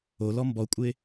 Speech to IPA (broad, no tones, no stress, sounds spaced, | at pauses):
o l ɔ m b ɔ kʷʼ ɪ